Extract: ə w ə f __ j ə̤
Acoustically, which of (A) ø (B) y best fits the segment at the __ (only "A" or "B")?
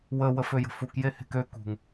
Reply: A